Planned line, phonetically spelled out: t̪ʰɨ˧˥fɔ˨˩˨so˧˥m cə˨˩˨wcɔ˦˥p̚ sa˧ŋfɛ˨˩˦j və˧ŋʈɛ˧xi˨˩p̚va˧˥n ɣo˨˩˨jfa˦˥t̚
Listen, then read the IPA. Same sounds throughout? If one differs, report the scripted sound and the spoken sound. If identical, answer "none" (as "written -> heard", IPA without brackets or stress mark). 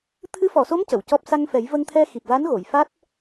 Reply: ʈ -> t̪ʰ